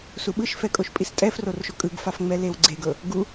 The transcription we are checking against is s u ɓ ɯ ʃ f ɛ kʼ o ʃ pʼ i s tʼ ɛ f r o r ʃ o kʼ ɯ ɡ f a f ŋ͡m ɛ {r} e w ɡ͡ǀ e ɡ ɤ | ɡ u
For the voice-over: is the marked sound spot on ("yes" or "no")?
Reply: no